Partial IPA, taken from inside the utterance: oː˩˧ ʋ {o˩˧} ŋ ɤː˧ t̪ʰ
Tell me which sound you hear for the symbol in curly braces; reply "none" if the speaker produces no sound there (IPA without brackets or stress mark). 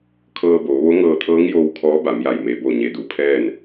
o˧˥